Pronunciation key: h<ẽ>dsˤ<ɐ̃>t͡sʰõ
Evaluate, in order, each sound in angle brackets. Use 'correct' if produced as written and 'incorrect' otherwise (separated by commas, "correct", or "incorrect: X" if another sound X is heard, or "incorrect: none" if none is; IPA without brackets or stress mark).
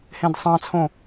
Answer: correct, incorrect: ɑ̃